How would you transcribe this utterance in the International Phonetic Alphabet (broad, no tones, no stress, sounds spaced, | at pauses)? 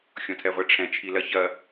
xʲ ɔ̃ tʰ ɛ ʁʷ ɛ ʈ͡ʂʰ ɛ̃ t͡ʃʰ i l ɐ ç ɐ